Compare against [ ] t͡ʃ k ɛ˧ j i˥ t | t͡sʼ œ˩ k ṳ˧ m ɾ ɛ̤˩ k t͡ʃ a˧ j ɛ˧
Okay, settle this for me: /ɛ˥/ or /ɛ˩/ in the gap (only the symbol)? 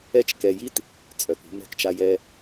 ɛ˥